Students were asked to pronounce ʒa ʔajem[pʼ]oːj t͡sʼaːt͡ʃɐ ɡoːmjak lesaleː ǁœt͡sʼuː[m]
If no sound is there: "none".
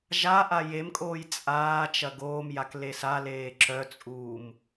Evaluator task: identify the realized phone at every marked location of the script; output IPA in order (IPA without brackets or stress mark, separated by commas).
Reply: kʼ, m